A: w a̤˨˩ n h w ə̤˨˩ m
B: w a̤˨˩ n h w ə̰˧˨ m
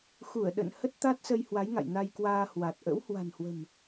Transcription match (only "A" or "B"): A